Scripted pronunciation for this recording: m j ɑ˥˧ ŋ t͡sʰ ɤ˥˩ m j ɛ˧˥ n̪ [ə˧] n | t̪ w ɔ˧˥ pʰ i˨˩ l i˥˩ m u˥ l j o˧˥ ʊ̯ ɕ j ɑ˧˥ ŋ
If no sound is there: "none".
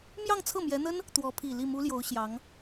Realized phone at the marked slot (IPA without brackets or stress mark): ə˥